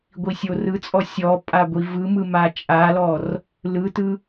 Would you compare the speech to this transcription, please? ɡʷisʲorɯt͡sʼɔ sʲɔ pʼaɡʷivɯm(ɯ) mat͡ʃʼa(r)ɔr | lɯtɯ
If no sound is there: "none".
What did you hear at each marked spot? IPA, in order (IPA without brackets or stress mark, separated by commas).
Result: ɯ, l